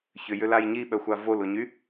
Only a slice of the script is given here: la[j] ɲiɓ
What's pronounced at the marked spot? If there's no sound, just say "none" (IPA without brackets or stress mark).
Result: j